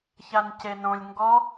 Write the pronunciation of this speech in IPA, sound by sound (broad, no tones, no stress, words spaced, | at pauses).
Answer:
çancenõlʲ ŋɡɔ